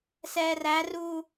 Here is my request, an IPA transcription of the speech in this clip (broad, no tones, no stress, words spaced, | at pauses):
sɛːræruː